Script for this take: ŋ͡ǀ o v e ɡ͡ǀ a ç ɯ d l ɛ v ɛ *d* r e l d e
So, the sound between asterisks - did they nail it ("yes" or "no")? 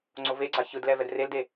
yes